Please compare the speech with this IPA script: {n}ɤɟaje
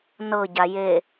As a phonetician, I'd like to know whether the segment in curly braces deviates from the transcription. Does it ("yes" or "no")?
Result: no